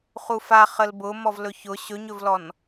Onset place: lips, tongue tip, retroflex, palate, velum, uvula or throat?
uvula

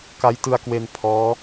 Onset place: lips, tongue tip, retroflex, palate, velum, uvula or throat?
velum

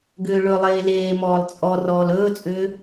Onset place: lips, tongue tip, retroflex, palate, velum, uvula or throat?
velum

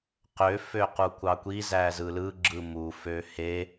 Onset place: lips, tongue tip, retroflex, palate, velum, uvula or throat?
uvula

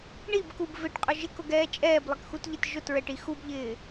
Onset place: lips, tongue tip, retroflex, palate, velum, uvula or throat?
retroflex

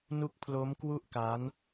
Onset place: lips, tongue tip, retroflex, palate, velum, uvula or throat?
tongue tip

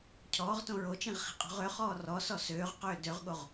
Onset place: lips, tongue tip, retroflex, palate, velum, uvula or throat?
palate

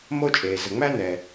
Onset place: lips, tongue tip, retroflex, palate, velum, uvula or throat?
lips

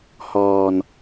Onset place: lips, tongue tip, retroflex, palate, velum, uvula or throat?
throat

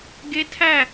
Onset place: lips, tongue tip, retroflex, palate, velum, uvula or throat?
velum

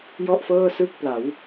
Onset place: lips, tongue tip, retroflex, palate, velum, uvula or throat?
palate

